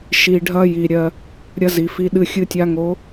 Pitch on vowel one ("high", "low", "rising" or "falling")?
low